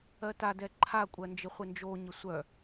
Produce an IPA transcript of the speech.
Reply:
ɜ t a d ɛ ǃʰ a kʷʼ ɜ n d͡ʒ ɪ χʷ ɪ n d͡ʒ o ɲ ɪ sʷ œ

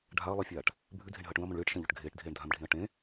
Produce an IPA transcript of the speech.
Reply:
ɖʱ a ɐ̯ lˠ i fʲ aː ʈ | bʱ ʉ dʱ e ɳ ɦ ɐː ʈ ũ ɐ̯ m õ ɳ ɭ ɨː ʈ ʃ ɐ̃ ʎ ɵ ʈ ɡʱ eː ʈ dʱ eː ɳ dʱ ã m ɖʱ ĩ ɐ̯ ʈ ẽ

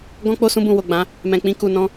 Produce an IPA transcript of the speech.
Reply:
ɡ ɔ̃˧ k͡p o˧ s ũ˧ b ũ˨ w o˨ ɡ͡b ã˨˦ | m ɛ̃˨ k͡p ĩ˧ k u˨ n ɔ̃˧

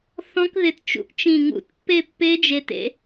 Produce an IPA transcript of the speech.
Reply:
θ ɔ̃˦˥ k ð ɪ˧ t t͡ʃ ṵ˧˩ ʔ t͡ʃ ĩ˧˩ ŋ ṵ˧˩ t pː e˥˧ pː e˦˥ d͡ʒ e˧ t ḛ˧

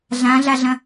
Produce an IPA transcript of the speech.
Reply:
ɮ ã ɮ a ɮ ɐ̃

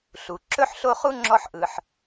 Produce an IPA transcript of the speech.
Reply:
ɬ u˩ ǁ ɵ˥ ħ ɬ o˦ χ u˥ ŋ͡ǁ ɔ˥ ħ ʔ ɯ˨ ħ

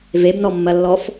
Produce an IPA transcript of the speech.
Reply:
v e b n ɔ mː ɐ lː ɔ f

